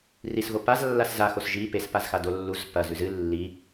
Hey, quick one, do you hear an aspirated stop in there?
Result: no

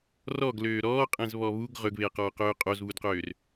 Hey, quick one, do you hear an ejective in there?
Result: yes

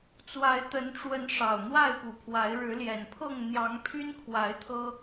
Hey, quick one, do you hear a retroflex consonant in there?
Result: yes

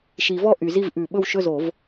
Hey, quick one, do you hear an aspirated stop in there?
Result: no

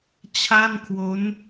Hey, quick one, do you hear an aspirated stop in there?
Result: yes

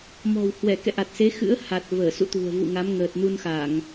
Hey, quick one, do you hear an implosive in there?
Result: no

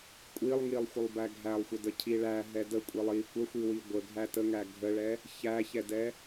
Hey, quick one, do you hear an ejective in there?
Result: yes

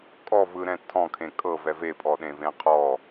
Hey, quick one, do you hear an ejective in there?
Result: yes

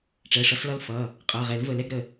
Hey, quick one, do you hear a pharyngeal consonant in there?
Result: no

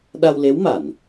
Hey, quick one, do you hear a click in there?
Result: no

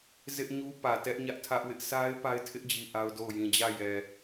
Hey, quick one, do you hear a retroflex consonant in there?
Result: no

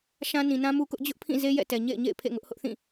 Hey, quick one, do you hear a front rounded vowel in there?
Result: no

